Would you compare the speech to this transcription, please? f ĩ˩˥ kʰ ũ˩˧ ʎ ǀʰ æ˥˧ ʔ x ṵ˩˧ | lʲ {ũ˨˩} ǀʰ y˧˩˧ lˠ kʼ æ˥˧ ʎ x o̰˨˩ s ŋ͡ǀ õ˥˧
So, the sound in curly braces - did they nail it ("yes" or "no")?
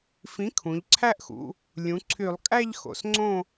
no